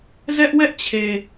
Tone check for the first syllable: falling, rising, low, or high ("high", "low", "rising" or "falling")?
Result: high